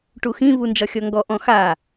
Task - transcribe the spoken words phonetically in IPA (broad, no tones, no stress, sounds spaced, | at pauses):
ʈ u x ĩ β u n d͡ʒ ɒ xʲ ɔ ŋ ɡ ɔ ʔ ɔ̃ x a